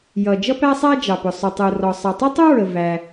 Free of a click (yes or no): yes